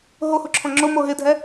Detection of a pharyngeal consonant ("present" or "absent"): absent